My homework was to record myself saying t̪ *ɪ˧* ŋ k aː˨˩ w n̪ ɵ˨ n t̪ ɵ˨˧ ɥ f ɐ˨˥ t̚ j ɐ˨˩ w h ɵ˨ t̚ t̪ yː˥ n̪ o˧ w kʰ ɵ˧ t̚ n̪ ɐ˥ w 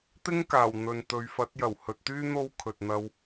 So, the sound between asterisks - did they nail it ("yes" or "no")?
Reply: no